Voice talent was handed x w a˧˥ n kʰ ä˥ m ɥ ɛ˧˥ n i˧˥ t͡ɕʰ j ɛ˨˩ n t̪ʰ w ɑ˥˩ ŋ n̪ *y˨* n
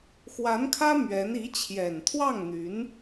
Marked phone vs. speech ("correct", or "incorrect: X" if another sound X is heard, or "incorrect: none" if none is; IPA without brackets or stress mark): incorrect: y˧˥